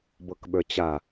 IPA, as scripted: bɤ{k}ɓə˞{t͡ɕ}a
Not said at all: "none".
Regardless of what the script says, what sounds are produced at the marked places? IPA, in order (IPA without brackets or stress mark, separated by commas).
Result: k, t͡ɕ